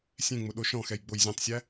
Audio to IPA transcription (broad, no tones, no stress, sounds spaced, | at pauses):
sʲ ẽ ŋ͡m ʊ ɗ o ʃ ɔ̃ x ɛ j ɡ͡b o j zʲ ɔ̃ tˤ sʲ æ